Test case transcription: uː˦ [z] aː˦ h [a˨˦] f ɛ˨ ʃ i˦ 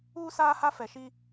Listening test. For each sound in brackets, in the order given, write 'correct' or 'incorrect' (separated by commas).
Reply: incorrect, incorrect